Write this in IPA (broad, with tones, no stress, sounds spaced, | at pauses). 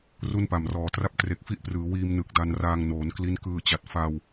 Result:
r u˥˩ n p a˨˩ m r ɔː˩˦ t r a˥˩ p̚ t r e˨˩ k̚ f i˥˩ ʔ p r ɯː˩˦ w iː˧ m n ɯ˨˩ k̚ d a˧ n r aː˧ ŋ n oː˩˦ n k l i˦˥ n k ɯː˧ t͡ɕ a˨˩ t̚ f a˧ w